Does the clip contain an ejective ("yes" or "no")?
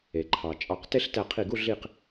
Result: yes